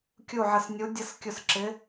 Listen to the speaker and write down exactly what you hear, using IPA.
kʲ u˦˨ ʕ ə˦˨ s nʲ u˧˥ dʲ ə˧˥ s kʲ ʊ˦˨ s ǁ ɪ˧˥

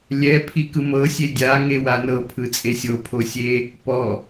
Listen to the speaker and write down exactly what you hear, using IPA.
lʲ ɛ pʰ i k ɯ m ɤ sʲ e dʲ a ŋ e w a n ɤ pʰ ɯ t͡sʼ e sʲ o pʰ o sʲ e | p ɔ

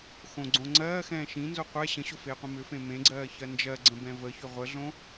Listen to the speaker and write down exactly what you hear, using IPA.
x õ ɡ͡ǀ õ ŋ͡ǀ ɜː x ɛ̃ː ʃ ĩ n z o qʷ ɛ ɕ ə̃ ɕ o f eː qʷ ĩ m ʏ f ẽ m ẽ ɡ͡ǀ ɜː ç ɜ n d͡ʒ ɜ ɡ͡ǀ ə̃ b ɛ̃ v ə ç ʏ ʁʷ ə ɮ õ

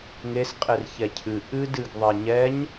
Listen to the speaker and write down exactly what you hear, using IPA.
ŋ e s qʼ e r ç ɛ cʰ ɨ ʔ ɨ d ɨ ɡ ðˤ e ɲ ɛ ɲ

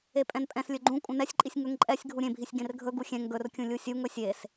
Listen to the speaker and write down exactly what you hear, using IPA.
e pʼ ɛ̃ n pʼ ɛ̃ s lʲ ɵ ɡ͡ǃ ũ kʼ ũ n ɛ sʲ ǃʼ i sʲ ŋ ɵ ŋ ǃʼ ɛ sʲ ɡʱ u ɾʲ ẽ bʱ i sʲ ɡ ẽ r ɡʱ ɵ ɡ u xʲ ɛ̃ ŋ ɡ ɵ r kʲ ũ lʲ u sʲ u ŋ ɵ sʲ e s

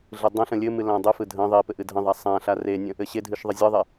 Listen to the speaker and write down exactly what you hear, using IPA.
ɮ ɯ dˤ ã ɬ ə̃ lʲ ɘ m ɨ l ã dˤ ɨ f ɯ dʱ ə̃ ðˤ i p ɘ ʔ ɨ dʱ ə̃ ðˤ a sˤ ã ɬ a r e nʲ ə̃ | ɘ ɕ e dʱ ɨ ʃ ðˤ ə zʲ ɯ ðˤ e

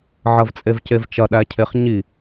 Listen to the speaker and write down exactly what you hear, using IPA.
ʕ ɐ v t͡sʼ e v c e v t͡ʃ ɐ ɗ æ cʰ e χ ɲ i

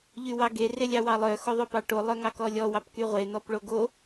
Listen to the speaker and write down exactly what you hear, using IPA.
ʎ y w ɑ ɡ e r e lʲ ɑ w ɑ lˠ œ x o ðˤ o p ɑ ʈ o lˠ œ ŋ ɑ k ɔ lʲ ɔ w ɑ p k y ʁʷ e n̪ ɔ p ɭ o ɡ o

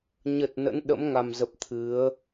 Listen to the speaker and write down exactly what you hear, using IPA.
ɲ ə˨˩ t̚ n ə̰˧˥ n ɗ ə̰˧˥ m ŋ a˨˩ m z ə˨˩ p̚ t̪ʰ ɨ˨˦ ə̯

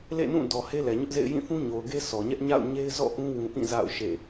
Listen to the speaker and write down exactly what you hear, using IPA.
l ḛ˦˨ n ũ˦˨ d ɔ˨ h e˦ l ɛ˨ ɲ ʊ˦ ʔ z ḛ˦˨ ɪ̯ j ĩ˦˨ θ ũ˦ ɲ o˨ ʊ̯ ɡ e˦ s ɔ˨ ɲ ɛ˦ ʔ ɲ a̰˦˨ ʊ̯ ɲ e˦ ɪ̯ z ɔ̰˦˨ ʔ ũ˦ w ũ˦ ʔ ĩ˦˨ z a̰˦˨ ʊ̯ ʃ ḛ˦˨

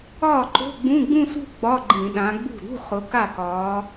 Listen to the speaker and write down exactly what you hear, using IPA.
ɒː˥˩ ǃ o̤˧˥˧ ɡ͡b ũ˧˥˧ ɡ͡b ũ˥˧ s ṳ˥˧ ɡ͡b ɒ˧˥˧ ɡ͡ǃ ĩ˧˩˧ ɗ ã˨˦ ɡ͡b ṳ˥˩ ɾ ṳ˧˥˧ χ ʊ˨˦ k a˥˩ k ɒː˨˦

